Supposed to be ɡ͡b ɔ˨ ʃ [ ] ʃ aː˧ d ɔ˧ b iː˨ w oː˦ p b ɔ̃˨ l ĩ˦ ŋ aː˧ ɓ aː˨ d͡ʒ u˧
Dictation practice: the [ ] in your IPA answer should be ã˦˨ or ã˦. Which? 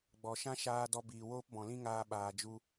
ã˦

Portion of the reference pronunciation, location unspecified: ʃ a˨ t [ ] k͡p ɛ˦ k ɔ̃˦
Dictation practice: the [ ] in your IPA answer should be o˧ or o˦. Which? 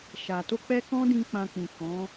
o˧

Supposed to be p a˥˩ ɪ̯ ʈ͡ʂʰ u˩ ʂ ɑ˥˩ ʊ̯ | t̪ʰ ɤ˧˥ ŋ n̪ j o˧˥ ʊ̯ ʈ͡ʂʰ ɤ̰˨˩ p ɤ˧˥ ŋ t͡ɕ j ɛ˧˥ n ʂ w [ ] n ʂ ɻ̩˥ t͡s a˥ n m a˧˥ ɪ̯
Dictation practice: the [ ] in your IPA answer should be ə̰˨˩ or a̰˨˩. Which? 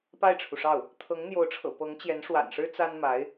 a̰˨˩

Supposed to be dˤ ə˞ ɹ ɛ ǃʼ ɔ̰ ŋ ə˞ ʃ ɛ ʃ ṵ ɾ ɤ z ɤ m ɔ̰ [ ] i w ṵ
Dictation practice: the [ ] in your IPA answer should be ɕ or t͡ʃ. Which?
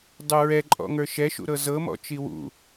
t͡ʃ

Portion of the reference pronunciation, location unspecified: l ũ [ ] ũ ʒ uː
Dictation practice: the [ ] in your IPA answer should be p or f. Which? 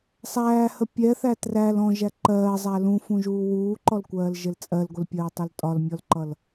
f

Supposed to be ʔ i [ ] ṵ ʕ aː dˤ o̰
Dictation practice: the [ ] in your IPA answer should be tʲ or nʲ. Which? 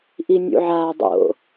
nʲ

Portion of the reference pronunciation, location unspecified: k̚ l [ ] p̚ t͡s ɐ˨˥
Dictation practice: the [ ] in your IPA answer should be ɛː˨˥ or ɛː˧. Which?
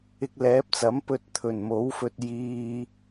ɛː˨˥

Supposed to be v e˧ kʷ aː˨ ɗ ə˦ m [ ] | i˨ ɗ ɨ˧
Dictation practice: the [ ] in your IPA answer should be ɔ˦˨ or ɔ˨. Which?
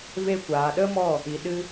ɔ˦˨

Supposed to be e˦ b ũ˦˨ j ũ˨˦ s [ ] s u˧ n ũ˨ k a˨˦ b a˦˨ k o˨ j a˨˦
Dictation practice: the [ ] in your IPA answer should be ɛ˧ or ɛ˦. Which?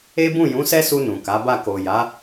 ɛ˦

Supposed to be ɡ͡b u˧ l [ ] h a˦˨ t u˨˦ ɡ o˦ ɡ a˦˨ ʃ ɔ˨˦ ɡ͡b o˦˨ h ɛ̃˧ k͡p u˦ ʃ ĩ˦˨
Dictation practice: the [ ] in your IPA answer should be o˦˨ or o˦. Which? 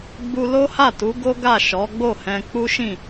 o˦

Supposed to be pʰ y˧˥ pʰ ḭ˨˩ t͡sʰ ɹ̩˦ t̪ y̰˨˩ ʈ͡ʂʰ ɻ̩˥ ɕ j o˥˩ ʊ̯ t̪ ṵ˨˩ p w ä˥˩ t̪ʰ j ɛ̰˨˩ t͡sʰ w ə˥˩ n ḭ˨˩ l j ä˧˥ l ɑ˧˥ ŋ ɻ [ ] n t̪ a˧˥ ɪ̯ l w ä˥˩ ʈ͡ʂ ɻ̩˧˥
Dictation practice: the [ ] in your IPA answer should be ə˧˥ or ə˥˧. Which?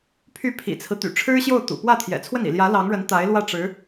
ə˧˥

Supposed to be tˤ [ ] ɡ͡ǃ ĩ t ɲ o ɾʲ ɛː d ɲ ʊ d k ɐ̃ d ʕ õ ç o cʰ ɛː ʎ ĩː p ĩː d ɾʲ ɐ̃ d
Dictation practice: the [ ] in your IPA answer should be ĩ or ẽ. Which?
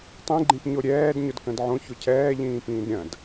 ĩ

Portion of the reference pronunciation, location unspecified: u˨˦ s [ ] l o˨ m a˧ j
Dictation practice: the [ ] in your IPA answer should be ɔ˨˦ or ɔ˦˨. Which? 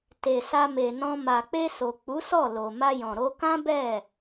ɔ˦˨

